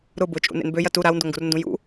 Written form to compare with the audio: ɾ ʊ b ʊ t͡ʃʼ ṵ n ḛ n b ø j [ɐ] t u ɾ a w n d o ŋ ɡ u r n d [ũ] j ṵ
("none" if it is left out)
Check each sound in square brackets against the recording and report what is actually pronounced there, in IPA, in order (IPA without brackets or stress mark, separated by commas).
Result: ɐ, ũ